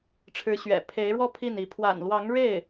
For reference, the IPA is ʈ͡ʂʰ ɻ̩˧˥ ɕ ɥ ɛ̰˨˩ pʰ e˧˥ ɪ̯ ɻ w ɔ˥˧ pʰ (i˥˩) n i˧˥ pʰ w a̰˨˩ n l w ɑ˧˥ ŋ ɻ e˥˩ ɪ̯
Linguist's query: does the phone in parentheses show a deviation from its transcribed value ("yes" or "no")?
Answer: no